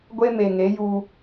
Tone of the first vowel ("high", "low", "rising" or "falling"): high